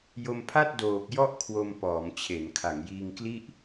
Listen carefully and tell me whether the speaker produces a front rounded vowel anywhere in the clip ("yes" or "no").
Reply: no